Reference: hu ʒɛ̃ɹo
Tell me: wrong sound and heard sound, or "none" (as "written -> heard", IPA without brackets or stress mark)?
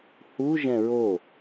none